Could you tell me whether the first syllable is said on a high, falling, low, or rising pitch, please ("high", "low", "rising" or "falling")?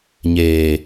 low